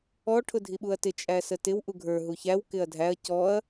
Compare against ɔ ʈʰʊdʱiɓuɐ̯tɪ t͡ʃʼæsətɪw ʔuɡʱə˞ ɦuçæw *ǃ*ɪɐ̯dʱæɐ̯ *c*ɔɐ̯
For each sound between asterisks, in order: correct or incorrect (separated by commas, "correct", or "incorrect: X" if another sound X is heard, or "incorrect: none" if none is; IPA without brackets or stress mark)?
incorrect: k, correct